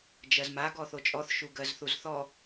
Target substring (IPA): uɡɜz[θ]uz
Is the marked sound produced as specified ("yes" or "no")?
yes